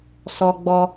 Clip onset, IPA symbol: s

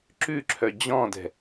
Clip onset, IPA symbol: ǁ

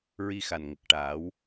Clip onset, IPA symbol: ɹ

